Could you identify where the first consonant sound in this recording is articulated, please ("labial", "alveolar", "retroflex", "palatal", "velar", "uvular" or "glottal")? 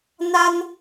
alveolar